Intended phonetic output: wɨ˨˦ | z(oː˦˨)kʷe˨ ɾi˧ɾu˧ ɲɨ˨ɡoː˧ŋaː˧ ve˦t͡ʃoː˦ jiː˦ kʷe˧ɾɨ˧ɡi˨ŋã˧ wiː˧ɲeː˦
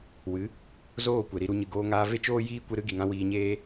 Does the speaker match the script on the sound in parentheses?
yes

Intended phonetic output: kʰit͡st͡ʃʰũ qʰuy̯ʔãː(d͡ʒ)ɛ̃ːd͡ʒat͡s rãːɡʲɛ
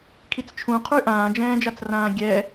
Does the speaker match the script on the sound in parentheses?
yes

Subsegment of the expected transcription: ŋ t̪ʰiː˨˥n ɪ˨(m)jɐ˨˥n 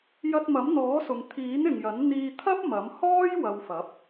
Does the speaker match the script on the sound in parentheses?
no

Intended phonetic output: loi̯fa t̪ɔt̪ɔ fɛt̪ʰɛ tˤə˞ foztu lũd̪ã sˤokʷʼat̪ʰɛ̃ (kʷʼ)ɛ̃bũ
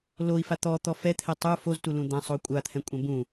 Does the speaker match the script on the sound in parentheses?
yes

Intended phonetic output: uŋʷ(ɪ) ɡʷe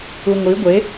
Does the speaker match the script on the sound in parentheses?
no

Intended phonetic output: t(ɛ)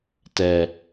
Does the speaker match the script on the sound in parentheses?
yes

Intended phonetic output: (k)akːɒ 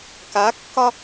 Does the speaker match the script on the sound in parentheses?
yes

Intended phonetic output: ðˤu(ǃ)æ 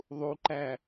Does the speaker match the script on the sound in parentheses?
yes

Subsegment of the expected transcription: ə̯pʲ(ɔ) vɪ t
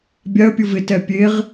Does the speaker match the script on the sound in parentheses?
no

